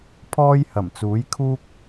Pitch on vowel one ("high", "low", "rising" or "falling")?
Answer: high